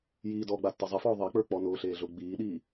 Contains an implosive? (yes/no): yes